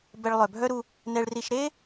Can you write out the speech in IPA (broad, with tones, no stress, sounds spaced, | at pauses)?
b ɛ˧ ɭ lˠ œ˩ bʱ œ˥ ɾ u˧ | n ɛ˧ ɭ r i˧ ʃ ɾ e˥